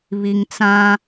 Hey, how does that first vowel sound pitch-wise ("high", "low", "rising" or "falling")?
low